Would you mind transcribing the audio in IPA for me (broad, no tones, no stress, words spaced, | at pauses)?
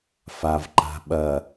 favǃa̤ ɓɐ